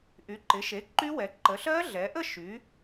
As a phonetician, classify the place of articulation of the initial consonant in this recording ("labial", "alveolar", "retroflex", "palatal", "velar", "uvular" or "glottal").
glottal